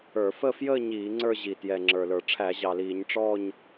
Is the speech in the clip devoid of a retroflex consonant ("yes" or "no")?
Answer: no